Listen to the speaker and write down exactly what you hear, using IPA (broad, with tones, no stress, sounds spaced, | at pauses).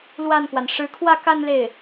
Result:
l w a˥˩ n k w a˩ n ʂ ɻ̩˧˥ kʰ w ä˥˧ k a˥˧ n l e˥˩ ɪ̯